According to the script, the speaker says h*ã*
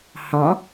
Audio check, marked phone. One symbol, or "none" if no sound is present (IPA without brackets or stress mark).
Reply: ɑ̃